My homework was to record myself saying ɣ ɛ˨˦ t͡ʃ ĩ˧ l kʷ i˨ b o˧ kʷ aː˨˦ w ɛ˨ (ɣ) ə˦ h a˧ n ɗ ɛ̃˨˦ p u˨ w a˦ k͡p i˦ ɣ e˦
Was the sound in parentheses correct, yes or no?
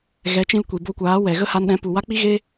yes